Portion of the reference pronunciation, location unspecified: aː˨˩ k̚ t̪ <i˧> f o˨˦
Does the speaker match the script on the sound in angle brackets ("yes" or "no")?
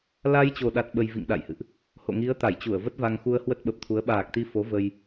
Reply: yes